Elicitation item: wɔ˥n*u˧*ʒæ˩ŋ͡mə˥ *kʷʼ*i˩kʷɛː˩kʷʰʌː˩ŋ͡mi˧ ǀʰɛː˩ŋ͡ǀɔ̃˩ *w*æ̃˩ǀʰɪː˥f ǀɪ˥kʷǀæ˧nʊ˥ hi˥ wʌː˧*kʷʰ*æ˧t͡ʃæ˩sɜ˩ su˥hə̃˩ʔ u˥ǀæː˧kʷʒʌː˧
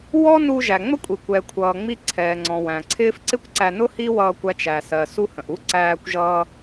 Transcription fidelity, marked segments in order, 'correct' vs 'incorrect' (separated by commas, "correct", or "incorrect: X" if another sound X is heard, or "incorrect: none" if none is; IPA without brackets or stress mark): correct, correct, correct, incorrect: kʷ